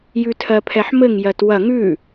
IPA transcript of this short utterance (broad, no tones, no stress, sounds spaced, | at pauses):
j ʉ tʰ ɜ pʰ ɛ ħ m ɘ ŋ j ɜ t w ɐ ŋ ʉ